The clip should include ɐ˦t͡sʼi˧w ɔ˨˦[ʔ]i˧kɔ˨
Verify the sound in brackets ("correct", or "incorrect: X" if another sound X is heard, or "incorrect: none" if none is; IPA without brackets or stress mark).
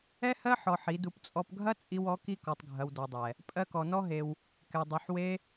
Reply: incorrect: k